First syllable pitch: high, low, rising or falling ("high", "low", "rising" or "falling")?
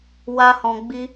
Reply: high